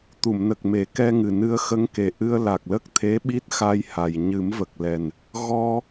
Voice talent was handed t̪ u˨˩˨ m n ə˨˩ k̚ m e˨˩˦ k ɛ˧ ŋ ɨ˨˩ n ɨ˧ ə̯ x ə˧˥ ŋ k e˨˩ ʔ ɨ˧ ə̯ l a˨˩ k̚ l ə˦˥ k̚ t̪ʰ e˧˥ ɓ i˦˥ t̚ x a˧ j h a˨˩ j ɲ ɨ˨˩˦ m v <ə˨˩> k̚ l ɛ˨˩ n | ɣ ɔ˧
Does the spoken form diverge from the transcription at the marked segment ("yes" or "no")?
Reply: no